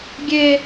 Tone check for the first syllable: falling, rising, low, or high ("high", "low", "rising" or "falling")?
high